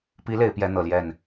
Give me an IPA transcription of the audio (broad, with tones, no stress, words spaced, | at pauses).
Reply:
pi˧˥ le˧˥ɪ̯pjɛ˧˥ n̪ɤ˨˩ljɛ˥˩n